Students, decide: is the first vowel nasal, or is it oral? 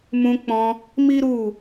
nasal